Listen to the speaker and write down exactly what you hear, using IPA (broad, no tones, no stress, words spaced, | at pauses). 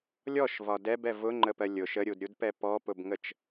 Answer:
lʲɔʃvɒ dɛbɛ vʊŋ͡ǃəpɜ lʲʊʃ əɾʲudɾʲudpɛ pɔpʊbŋət͡ʃ